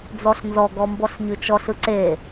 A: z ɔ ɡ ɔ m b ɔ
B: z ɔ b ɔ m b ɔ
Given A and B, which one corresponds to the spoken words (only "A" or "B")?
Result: A